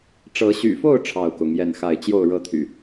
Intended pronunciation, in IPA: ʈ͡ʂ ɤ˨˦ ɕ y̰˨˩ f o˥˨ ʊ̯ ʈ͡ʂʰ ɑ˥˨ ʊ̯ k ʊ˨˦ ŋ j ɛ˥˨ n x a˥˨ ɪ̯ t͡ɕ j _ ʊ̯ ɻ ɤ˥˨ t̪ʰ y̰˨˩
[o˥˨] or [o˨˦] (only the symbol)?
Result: o˥˨